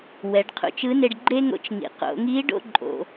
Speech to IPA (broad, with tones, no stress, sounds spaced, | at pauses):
w ɛ˩˧ ɖ qʰ ṵ˩ t͡ʃ ɯ˧˥ n e˧ ɖ ɡ͡ǃ e˥ ŋ o̰˧ t͡ʃ ŋ ḭ˩ q o̰˩˧ ŋ i˧˥ ɖ o̰˥ ǃʼ o̰˩